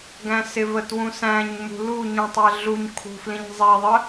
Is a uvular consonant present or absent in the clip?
absent